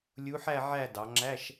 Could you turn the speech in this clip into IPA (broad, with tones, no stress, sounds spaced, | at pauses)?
lʲ u˧˥ ħ æ˥˧ ʕ æ˥˧ d ɑ˩˧ ŋ͡ǁ æ˧˥˧ ʃ